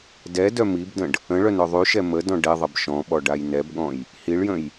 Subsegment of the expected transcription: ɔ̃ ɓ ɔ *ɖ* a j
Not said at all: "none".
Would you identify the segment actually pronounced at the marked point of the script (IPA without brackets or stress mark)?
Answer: ɖ